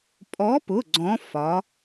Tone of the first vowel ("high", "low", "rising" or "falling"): rising